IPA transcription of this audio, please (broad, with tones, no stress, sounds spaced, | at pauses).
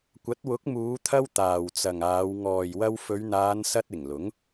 kʷ ɐ˨˥ t̚ w ʊ˨˥ k̚ m uː˨˧ t̪ʰ ɐ˧ w t̪ aː˨ w t͡s ɐ˨ ŋ aː˨˧ w ŋ ɔː˨ j w ɐ˧ w f ɵ˨˧ ɥ n̪ aː˨˧ n s ɐ˧ t̚ ɪ˨˩ ŋ l ʊ˨˥ ŋ